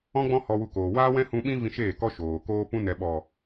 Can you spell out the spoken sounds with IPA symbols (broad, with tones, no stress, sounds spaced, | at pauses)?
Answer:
ɔ̃˦ ɡ͡b ɔ̃˦ h ɔ˧ w u˧ k oː˨ w aː˦ w ɛ̃˦ h ũ˧ ɓ ĩ˦ v ĩ˧ ʃ eː˦˨ k ɔ˦ ʃ oː˨ k oː˦ p ũ˦ n ɛ˨ ɓ ɔ˨